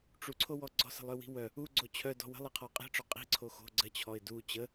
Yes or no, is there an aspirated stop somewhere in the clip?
yes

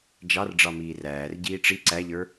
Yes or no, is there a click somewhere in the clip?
yes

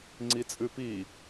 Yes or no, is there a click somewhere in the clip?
yes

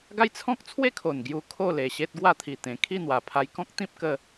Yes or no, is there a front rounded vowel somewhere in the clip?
no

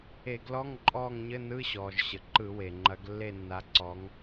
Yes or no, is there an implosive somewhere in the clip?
no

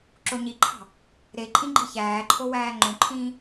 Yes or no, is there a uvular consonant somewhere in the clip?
no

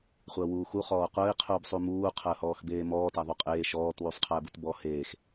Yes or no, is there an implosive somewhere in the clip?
no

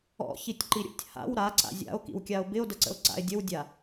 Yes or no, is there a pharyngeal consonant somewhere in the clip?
no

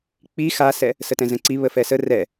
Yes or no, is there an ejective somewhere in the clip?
no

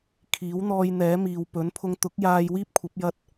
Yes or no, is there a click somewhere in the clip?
no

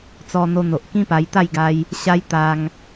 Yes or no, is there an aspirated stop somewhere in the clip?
no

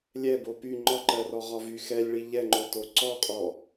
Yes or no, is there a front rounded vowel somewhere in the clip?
yes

